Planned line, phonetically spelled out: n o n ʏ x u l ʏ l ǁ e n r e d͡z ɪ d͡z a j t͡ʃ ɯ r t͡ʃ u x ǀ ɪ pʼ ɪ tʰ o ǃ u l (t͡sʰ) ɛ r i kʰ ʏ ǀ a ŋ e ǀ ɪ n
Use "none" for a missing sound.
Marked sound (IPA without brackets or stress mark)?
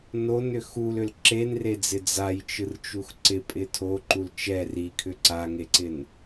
t͡ʃ